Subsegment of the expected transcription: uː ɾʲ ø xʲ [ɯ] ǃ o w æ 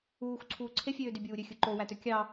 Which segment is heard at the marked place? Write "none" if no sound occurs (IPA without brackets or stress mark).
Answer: ɯ